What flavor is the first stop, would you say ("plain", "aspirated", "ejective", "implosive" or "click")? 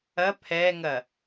aspirated